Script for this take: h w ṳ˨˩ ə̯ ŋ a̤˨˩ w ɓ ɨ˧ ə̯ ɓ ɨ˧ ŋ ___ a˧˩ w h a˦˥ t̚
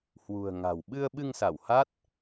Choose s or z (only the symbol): s